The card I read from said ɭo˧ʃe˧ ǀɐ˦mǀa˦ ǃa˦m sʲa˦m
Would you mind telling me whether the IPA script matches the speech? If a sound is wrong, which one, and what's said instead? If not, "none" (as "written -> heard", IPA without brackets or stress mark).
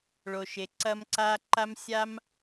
none